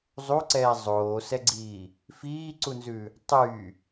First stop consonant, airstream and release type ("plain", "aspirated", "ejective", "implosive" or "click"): click